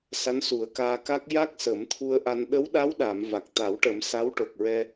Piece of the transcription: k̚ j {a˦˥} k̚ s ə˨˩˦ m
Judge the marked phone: correct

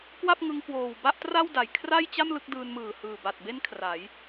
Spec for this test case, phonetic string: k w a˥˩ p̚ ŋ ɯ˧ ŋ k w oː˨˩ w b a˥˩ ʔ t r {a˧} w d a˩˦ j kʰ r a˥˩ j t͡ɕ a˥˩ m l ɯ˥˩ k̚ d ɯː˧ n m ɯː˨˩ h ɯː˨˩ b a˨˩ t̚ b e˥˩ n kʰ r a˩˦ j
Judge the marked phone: incorrect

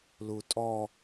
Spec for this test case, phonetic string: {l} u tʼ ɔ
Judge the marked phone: correct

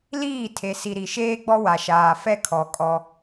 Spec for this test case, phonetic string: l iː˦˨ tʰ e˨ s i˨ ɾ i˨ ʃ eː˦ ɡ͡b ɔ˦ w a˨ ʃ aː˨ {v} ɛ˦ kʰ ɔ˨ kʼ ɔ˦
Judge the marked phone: incorrect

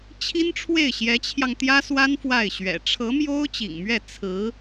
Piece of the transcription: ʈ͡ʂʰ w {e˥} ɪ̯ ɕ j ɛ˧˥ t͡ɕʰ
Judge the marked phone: incorrect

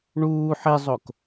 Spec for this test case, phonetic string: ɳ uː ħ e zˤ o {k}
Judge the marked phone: correct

